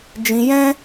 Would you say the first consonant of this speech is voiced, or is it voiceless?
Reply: voiced